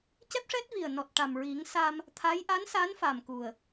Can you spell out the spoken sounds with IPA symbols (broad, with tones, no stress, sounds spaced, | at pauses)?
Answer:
c ɛ˦˥ p̚ ʂ ɛ˦˥ t̚ v i˨˩ ə̯ n ɔ˨˩ t̚ ʈ a˨˩ m ɹ i˨˩˦ ŋ s a˧ m | t̪ʰ a˧˥ j ʔ a˧˥ n s a˧˥ n f a˨˩ m k u˨˩ ə̯